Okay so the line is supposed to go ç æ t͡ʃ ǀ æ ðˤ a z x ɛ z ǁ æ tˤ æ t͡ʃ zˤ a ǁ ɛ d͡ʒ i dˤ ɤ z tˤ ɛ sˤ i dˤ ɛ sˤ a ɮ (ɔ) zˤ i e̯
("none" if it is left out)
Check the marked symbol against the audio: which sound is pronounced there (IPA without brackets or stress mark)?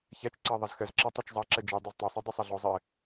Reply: ɔ